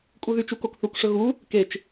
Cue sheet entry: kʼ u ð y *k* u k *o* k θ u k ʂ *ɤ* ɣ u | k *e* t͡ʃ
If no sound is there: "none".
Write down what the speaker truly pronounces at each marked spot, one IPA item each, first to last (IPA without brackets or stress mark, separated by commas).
t͡ʃ, o, ɵ, e